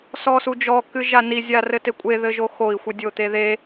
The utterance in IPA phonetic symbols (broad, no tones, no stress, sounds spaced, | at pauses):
s ɔ s u d͡ʒ ɔ k ɨ ʒ a n i zʲ a r ɘ t e kʷʼ e ð ɘ ʒ o x o i̯ xʷ ɘ dʲ o t̪ e ð e